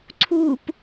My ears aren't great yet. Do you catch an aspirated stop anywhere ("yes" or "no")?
yes